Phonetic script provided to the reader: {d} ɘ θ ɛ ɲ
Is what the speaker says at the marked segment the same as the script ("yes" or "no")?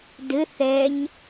yes